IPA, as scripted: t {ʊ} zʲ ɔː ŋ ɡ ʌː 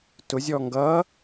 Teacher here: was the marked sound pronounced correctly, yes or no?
yes